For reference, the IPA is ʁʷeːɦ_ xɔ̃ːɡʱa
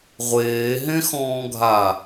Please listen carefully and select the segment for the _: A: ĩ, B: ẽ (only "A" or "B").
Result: B